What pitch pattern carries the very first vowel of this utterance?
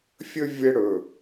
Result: high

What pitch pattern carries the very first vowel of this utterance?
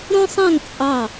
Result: high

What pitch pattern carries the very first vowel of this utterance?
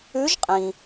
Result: rising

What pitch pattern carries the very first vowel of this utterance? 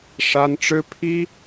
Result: high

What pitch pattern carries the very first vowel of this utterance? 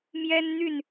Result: high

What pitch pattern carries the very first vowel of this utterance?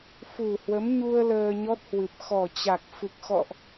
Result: low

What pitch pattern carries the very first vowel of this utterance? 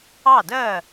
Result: falling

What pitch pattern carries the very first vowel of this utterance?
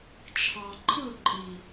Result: low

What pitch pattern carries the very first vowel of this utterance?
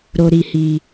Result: low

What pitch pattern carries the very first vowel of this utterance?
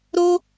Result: high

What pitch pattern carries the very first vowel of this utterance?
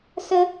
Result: high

